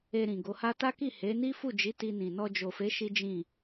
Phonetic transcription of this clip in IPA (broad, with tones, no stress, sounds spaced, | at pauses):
e˧ ɾ ĩ˨ ɡ o˨˦ h a˦ t a˦ k i˦˨ h e˨˦ n i˦ f u˦˨ d͡ʒ i˨˦ t i˧ n ĩ˨ n ɔ˧ d͡ʒ o˨ f e˨˦ ʃ i˦ d͡ʒ ĩ˦˨